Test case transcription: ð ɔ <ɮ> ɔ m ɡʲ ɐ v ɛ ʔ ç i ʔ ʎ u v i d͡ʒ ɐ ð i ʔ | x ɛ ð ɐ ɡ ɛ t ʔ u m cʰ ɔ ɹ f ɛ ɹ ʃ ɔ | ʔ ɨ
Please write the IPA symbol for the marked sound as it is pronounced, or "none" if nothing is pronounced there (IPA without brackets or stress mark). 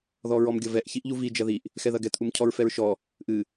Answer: ɹ